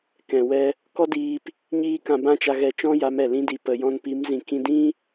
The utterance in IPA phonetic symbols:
k ɛ̃˨ w ɛ˧ | k ɔ˦ d iː˧ p | ɲ iː˦ k ã˧ b ã˦ t͡ʃ a˧ ɣ ɛ˧ t͡ʃ ɔ̃˦ j a˨˦ m ɛ˨ l ĩ˧ d i˨ p ə˨ j ɔ̃˧ n p i˨˦ m z ĩ˨ k ĩ˧ d ĩ˦

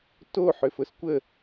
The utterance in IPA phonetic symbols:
t o ħ ʏ f ʊ s kʷ ə

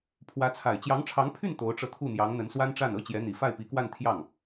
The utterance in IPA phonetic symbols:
pʰ w ä˧˥ t͡sʰ a˨˩ ɪ̯ t͡ɕ j ɑ˧˥ ŋ ʈ͡ʂʰ ɑ˧˥ ŋ pʰ y˥˩ n t̪ o˧˥ ʊ̯ ʈ͡ʂ ɤ˧ t̪ʰ u˥˩ n̪ j ɑ˧˥ ŋ n̪ ə˧˥ n s w a˥ n ʈ͡ʂ a˥˩ n ɤ˥ t͡ɕ j ɛ˧˥ n̪ i˨˩ f a˥˩ ɪ̯ p i˧˥ k w a˥˧ n t̪ʰ j ɑ˥˩ ŋ

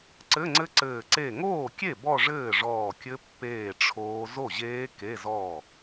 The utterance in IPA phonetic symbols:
ǀ ɘ˧˥˧ ŋ͡ǀ ɘ˦˥ ǀ ɘː˧˩ ǀ e˧˩ ŋ oː˥˩ kʲ e˥˩ b ɔ˥˧ ʐ ɘː˥˩ ʐ ɔː˧˩ kʲ ɘ˦˥ pː eː˥˩ ʈ͡ʂʰ oː˦˥ z o˥˩ ʑ eː˦˥ k e˧˥˧ z ɔ˥˩

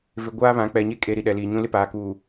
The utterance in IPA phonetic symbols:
v ɪ˨ ɡʷ aː˦ β ã˨˦ k͡p ɛ˨ ɲ e˦ kʼ e˨ ɾ i˨ ɗ ɛ˨ l iː˨ ɲ ũ˦ l ɪ˦ p aː˨ k uː˨

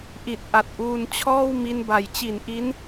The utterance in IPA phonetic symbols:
ʔ i˨˩ t̚ ʔ a˨˩ t̚ ʔ uː˧ n t͡ɕʰ ɔː˥˩ w m i˧ n b a˩˦ j t͡ɕ i˨˩ n ʔ i˦˥ n

